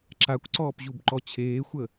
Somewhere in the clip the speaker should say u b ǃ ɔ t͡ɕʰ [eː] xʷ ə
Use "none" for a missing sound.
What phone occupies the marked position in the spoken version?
eː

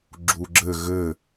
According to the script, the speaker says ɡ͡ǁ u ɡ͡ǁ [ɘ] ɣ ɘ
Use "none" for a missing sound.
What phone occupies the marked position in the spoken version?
ɘ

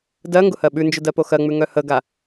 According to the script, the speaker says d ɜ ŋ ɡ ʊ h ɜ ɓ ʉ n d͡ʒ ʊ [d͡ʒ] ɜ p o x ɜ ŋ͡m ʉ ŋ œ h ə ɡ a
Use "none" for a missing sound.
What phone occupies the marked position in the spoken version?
d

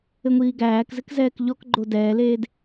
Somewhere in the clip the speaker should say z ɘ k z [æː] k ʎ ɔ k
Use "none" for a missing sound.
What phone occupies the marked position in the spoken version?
ɛː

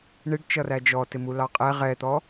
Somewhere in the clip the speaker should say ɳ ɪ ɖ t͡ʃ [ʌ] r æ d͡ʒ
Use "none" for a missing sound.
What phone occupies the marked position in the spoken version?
ʌ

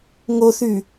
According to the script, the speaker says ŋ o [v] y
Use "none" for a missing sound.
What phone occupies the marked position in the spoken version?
θ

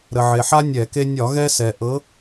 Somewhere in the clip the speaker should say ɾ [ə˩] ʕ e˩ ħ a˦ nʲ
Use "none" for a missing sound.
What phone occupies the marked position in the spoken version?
ə˩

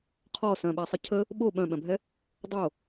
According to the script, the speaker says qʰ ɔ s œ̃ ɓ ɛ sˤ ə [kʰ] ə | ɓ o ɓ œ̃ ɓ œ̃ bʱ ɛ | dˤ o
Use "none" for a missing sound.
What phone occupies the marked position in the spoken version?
cʰ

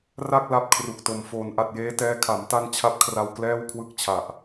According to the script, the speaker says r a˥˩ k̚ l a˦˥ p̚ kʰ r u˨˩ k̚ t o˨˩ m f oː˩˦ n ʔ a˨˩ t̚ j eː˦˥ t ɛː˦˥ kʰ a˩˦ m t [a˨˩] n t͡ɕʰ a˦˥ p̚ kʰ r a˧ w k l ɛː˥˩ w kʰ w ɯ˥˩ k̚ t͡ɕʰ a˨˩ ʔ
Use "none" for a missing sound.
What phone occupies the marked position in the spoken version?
a˥˩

